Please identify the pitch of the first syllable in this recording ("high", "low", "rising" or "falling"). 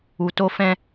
low